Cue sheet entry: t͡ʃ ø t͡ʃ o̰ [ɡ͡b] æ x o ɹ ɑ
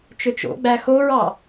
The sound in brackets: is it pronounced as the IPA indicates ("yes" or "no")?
yes